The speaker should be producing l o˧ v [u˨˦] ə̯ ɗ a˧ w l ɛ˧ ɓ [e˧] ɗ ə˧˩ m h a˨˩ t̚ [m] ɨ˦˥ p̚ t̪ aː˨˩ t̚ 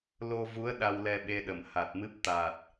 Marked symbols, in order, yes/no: yes, yes, yes

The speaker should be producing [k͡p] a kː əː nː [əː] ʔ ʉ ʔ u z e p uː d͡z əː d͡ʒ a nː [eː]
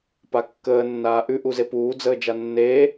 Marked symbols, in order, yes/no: no, no, yes

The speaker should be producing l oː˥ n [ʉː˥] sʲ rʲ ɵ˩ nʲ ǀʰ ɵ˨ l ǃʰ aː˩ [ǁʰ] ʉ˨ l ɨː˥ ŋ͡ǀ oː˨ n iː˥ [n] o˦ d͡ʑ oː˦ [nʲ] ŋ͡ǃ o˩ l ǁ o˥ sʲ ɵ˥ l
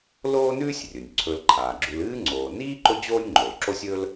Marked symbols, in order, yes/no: yes, no, no, yes

